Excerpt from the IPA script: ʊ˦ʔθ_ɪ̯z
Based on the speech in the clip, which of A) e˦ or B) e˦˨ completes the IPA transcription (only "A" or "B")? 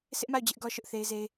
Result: A